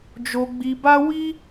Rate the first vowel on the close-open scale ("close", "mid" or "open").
mid